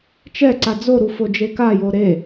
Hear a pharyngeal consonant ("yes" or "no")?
no